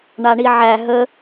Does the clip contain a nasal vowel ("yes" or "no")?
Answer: no